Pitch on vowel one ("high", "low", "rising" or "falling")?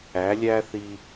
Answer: rising